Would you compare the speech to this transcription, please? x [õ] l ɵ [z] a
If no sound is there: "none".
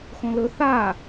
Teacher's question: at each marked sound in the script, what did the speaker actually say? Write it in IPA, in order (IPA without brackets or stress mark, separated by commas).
õ, θ